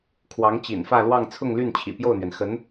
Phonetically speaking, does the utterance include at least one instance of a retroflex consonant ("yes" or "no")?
no